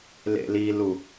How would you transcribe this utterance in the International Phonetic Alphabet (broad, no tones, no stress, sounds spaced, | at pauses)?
l ḛ l i l u